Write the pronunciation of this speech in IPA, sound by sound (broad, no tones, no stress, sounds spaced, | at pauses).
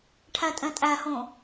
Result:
ʈʰ æ tʼ ɛ̃ tʼ æ h õ